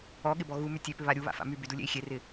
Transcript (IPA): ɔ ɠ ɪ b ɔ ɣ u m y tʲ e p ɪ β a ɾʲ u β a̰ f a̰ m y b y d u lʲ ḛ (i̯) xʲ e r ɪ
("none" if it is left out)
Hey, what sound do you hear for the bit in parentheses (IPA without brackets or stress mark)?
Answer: i̯